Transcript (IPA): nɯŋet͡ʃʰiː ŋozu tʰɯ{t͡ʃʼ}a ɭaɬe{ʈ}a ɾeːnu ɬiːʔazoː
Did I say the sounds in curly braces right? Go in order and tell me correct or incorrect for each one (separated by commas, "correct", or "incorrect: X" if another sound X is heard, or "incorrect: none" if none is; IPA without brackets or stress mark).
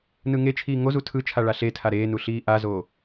incorrect: t͡ʃʰ, incorrect: tʰ